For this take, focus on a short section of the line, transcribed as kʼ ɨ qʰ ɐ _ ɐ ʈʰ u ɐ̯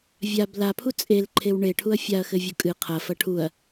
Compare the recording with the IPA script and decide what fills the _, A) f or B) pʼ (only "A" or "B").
A